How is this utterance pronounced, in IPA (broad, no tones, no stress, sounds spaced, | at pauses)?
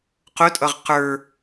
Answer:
q ʊ tʼ ʌ ʁ q ə˞